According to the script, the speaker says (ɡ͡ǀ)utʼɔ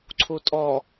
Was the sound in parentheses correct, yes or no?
no